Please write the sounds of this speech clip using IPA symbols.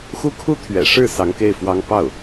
xu˥kʰu˥t̪ʰɥɛ̰˨˩ʂɻ̩˥˩ sɑ˧˥ŋke˥˩ɪ̯fwɑ˥ŋ pɑ˥˩ʊ̯

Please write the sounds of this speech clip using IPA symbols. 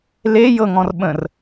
le jɤŋɔ̃rɓə̃r

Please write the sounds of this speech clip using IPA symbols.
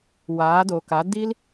waː˨˦do˨ka˨˦ di˦l

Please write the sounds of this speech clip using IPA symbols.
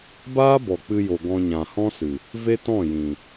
baː˦bɔ˨k͡pɨ˧jo˨ ɡɔ̃˧ɲã˨hɔ̃˦sɨ˨ | ve˦tɔ̃˦˨jĩ˨

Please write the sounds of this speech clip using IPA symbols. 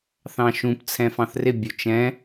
θɑ̃ʃũp t͡sʰɛ̃fɑ̃θrɪ bʲʊt͡ʃɛ̃

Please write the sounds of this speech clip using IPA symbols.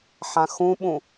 ħãxũɓũ

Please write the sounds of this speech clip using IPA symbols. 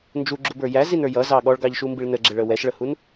nd͡ʒuɡ͡ǁubə˞ jæzinə˞ jʌzɑ ɠɔɭɡɑʎʃumbiɭ nəɡ͡ǁɪɭə wɛʃɭəhun

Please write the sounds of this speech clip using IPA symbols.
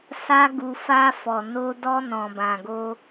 sa˧ɡu˨ fa˧ fɔ˨no˧dɔ˧ nɔ̃˨bã˨ɡo˧

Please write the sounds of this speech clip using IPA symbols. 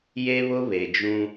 je˦βʊ˦ βe˨d͡ʒũ˦

